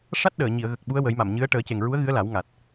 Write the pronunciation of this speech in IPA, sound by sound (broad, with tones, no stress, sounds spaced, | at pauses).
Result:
ʂ a˦˥ t̚ ɗ əː˨˩˨ ɲ i˨˩˨ ə̯ ɣ ə˨˩ k̚ ɓ u˧˥ ə̯ w ə˨˩˦ j m a˨˩˨ m ɲ ɨ˧˥ ə̯ ʈ əː˨˩˦ c e˨˩ ŋ ɹ u˧˥ ə̯ ɣ ɨ˧˥ ə̯ l a˨˩˦ w ŋ a˨˩ t̚